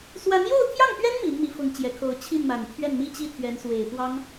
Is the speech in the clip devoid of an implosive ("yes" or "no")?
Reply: yes